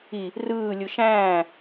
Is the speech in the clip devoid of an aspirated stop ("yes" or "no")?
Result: yes